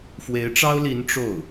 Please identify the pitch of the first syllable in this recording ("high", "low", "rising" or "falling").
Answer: rising